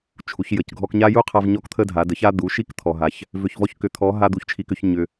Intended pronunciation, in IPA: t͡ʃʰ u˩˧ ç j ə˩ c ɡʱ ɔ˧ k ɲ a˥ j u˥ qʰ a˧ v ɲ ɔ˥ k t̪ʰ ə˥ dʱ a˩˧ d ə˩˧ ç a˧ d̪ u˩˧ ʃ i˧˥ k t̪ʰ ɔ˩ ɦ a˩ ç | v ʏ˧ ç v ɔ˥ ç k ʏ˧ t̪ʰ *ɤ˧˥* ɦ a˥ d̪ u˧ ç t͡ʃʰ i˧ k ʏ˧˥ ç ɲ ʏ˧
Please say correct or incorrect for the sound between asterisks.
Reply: incorrect